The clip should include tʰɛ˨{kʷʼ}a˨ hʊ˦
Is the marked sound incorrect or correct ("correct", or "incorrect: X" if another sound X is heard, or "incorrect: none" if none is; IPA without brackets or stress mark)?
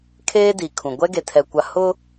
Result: incorrect: kʷ